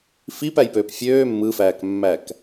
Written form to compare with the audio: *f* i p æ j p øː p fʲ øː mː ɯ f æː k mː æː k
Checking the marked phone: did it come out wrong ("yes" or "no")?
no